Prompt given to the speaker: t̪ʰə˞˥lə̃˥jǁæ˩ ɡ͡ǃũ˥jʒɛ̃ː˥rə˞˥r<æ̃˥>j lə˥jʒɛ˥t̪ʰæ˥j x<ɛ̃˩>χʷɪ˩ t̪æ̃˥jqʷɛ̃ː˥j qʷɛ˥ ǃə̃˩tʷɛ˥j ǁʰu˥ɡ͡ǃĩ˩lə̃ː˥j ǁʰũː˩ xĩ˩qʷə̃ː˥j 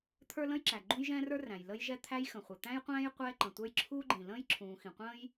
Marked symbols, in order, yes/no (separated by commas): no, no